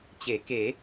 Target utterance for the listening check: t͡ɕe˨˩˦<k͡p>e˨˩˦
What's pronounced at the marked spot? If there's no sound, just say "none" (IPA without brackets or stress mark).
k